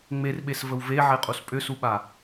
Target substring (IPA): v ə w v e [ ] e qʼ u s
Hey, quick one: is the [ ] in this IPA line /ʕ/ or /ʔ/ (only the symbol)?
ʕ